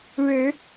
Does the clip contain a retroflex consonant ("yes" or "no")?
yes